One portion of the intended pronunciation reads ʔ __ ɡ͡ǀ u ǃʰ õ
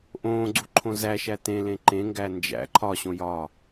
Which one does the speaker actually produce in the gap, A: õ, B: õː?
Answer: B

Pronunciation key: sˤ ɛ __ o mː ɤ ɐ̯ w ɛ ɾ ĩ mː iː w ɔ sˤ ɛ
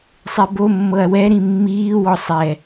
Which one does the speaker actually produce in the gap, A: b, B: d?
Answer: A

